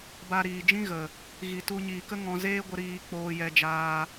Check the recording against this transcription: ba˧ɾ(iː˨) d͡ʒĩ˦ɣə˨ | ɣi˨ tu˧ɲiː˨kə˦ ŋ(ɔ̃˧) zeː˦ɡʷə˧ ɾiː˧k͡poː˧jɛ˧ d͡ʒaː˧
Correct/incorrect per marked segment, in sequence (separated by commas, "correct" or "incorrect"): correct, correct